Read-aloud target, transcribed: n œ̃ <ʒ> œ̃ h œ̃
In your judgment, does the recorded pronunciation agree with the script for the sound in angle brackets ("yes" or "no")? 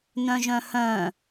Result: yes